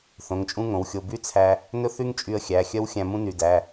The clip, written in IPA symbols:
θ õ˩˧˩ ŋ t͡ʃʼ ũ˥ ŋ õ˩˧˩ w xʲ o˧ b y˥ t͡sʰ æ˧ | n ɵ˥ θ y˥ ŋ t͡ʃʼ y˧ ə̯ xʲ æ˩˧˩ xʲ œ˥ w xʲ æ̃˧ m ũ˥ n y˩˧˩ d æ˩˧˩

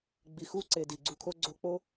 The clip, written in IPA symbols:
ɡ͡b i˨ x u˦ ǀ e˨ d i˨ ɡ͡ǀ u˧ kʰ o˦ ɡ͡ǀ o˧ k͡p o˦

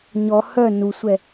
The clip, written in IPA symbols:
ɲ ɔ h œ n u sʷ ɛ

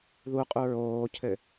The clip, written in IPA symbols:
ð u qʼ u ɹ oː cʰ ɘ

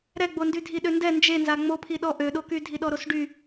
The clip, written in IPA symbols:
ɾ ɛ ɡ͡b o n d y dʱ i ɗ ø n d ɛ n d͡ʒ e n z a ŋ͡m o pʰ i ɗ ɔ ʔ ø ɗ o k y dʱ i ɗ ɔ ɾ o s ɖ y

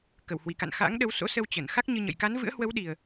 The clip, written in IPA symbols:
k ə˧˩ w h w i˧˩ k a̰˧˨ n x a̰ː˧˥ ŋ ɗ ə˨˦ w s o̰˧˥ s ə˧ w t͡ɕ ə˧˩ n x a˦˥ k̚ ɲ ɨ˧ ɲ ə̰˧˨ j k a˨˦ n v ɨ̰˧˥ ə̯ h w ə˨˦ w ɗ i˨˩ ə̯

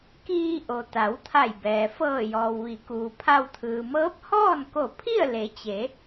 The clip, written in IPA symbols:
k iː˧ ʔ o˩ t̪ a˩˧ w t̪ʰ a˧˩ j b ɛː˩ f ɤː˧˩ j ɔː˩ w ʋ i˩˧ k uː˩ pʰ a˧ w t̪ʰ ɯː˩ m ɤː˧˥ p̚ h ɔː˥˨ n k o˧˩ pʰ i˥˨ ə̯ l e˩˧ t͡ɕ e˩˧

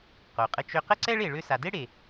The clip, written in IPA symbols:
q o˩ qʼ ə˧ t͡ʃ ø˧ q ə˥ ǀ ɛ˥ ɭ e˩ ɭ ø˧ s a˩ d e˥ ɽ e˩

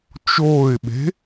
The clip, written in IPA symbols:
t͡ʃ oː ɪ̯ ɓ e̤

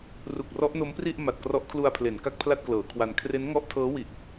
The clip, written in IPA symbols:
r u˨˩ k̚ r ɔ˦˥ ʔ n o˦˥ m p r i˥˩ ʔ m a˨˩ t̚ k r ɔ˦˥ ʔ kʰ l u˧ a̯ pʰ l e˩˦ n k a˥˩ k̚ pʰ l a˥˩ t̚ k l ɤː˩˦ kʰ w a˧ n kʰ r e˦˥ n ŋ ɔ˦˥ ʔ tʰ ɤː˦˥ w i˨˩ ʔ

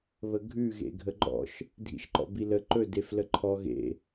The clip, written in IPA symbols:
β ə ɡʱ ʉ ɣ ḛ ɡʱ ə ɡ͡ǃ ɔ̰ ʃ | dʱ ḭ ʃ ǃ ɔ̰ b i l ə ǃ ɵ d e f l ə ǃʰ ɔ ɣ ḛ

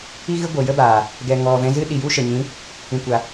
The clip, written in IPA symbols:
i˦ ɣ ɨ˦ ɡʷ ə˨ j ə˦ b aː˨ | ɡ ɛ˨ ŋ ɔ˨ v ɛ̃˧ z ɨ˦ ɗ i˨ j u˦ ʃ ə˨ ɲ ĩ˨˦ | ĩ˨ kʷ a˨

